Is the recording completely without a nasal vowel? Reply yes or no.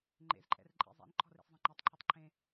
no